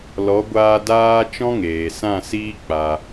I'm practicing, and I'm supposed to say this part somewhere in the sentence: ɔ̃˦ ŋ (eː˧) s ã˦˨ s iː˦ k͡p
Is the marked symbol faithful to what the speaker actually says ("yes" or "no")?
no